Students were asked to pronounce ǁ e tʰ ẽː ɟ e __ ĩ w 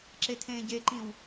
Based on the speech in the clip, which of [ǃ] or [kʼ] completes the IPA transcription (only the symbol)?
ǃ